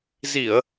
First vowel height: high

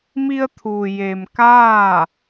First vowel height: high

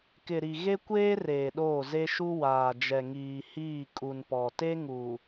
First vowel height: high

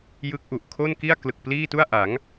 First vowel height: high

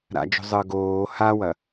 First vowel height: low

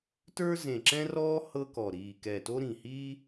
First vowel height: mid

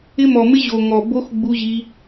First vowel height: high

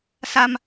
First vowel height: low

